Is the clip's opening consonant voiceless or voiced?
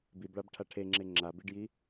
voiced